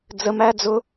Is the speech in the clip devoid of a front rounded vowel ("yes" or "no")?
yes